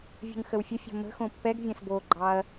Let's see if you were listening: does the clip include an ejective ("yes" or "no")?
no